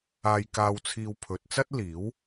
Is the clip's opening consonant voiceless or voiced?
voiced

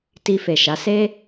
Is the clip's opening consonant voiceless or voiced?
voiceless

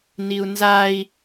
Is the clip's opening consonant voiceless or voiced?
voiced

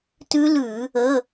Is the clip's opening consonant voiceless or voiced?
voiceless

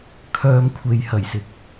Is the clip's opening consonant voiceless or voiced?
voiceless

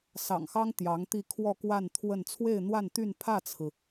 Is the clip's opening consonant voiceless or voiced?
voiceless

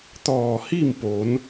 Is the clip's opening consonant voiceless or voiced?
voiceless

